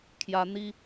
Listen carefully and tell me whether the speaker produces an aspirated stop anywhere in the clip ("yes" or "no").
yes